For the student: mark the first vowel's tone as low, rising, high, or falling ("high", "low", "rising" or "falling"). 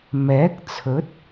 rising